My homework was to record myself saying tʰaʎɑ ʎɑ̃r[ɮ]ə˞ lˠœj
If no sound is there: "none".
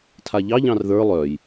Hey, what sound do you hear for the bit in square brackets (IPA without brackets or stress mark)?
ð